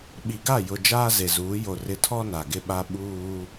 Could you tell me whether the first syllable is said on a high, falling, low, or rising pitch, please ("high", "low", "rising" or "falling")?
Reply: low